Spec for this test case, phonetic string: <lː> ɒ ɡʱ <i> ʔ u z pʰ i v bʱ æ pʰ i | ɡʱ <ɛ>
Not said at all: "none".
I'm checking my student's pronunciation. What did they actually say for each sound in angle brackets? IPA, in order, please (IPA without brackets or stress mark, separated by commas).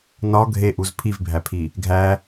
n, e, æ